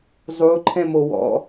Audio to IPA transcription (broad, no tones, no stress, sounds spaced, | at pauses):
zˤ u ǃʰ ɛ̃ m o w ɔ̰